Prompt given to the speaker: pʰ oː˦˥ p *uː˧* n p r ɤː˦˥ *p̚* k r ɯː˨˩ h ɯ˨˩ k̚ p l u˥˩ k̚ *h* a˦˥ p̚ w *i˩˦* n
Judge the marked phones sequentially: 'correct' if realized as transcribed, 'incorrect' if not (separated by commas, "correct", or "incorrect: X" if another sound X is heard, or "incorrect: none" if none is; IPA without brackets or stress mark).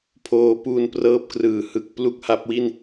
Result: correct, correct, correct, incorrect: i˥˩